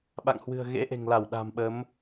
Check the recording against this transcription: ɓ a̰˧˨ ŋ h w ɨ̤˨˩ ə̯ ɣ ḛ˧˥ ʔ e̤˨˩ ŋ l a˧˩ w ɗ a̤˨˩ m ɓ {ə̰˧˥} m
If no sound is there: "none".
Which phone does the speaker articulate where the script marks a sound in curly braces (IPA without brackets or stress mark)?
ə˨˦